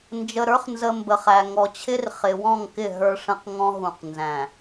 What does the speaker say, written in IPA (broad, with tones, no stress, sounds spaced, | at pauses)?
n d͡ʒ ə˨ ɾ ə˞˦ χ n z ə˨ m b ə˨ χ æ˨ ŋ ɔ˨ t͡ɕʰ ɪ˦ r χ ɪ˨ w ɔ̃˦˨ ŋ k ɪ˦˨ ɦ ə˞˦ ʂ ə̃˦ q ŋ ɔ̃˦ ɦ ũ˨ q n z æ̃˨